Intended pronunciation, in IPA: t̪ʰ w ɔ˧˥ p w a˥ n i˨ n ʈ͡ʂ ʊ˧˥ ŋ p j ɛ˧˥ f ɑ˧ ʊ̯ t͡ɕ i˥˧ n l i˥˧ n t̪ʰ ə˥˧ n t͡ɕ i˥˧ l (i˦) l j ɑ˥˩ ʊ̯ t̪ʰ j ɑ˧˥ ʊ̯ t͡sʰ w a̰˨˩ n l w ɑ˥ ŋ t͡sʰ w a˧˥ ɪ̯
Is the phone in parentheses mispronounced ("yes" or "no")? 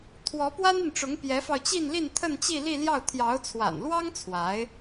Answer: yes